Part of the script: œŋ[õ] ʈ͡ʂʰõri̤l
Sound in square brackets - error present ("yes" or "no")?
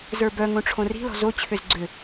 no